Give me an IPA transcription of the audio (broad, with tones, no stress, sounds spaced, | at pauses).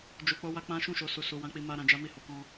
d͡ʒ u˨ k͡p o˧ w a˧ k͡p ã˦ ʃ ũ˦˨ ʃ o˧ s u˨ s u˨ w ã˧ k͡p i˧ m a˧ ɾ ã˧ d͡ʒ a˦ m i˦˨ h o˨˦ k ɔ̃˧